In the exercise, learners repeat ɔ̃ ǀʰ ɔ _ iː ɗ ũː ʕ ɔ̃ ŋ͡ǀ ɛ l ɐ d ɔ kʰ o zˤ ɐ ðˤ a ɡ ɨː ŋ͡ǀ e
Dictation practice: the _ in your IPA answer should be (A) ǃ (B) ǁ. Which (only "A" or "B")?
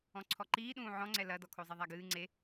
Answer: A